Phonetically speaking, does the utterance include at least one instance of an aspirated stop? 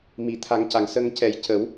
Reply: yes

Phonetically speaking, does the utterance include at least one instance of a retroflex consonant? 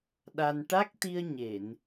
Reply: yes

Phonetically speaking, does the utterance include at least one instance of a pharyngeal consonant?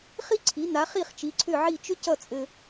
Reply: yes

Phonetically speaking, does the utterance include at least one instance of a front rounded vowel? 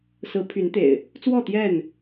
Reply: yes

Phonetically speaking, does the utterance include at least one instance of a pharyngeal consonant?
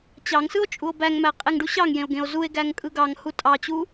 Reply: no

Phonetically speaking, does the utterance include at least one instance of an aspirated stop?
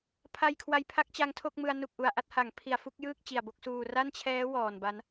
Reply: yes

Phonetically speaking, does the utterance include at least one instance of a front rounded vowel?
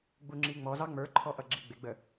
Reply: no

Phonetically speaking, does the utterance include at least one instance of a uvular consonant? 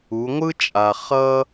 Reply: yes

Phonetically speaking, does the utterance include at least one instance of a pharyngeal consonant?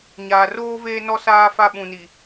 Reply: no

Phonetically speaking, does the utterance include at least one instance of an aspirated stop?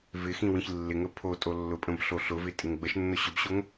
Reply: yes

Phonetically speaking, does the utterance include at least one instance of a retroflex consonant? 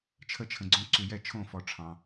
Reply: yes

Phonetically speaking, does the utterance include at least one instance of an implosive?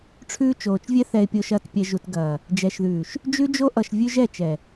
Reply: no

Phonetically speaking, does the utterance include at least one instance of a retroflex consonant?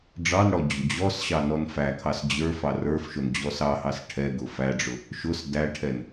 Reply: yes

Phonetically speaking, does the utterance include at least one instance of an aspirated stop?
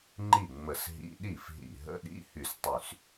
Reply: no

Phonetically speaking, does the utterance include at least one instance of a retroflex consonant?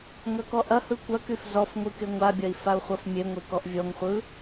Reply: no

